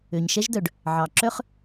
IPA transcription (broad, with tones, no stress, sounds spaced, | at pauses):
ø˩ ɲ ʃ ɛ˥ ʒ d œ˩ ɖ | ʕ ɑ˩ ǁ œ˥ χ